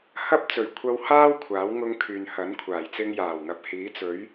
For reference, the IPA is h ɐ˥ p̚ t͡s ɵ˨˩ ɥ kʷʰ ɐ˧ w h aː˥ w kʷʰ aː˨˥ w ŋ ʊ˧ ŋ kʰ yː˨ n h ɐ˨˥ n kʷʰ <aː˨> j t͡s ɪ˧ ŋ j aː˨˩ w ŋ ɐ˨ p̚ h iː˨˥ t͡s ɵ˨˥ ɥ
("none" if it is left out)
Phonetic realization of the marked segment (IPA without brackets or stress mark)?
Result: aː˨˩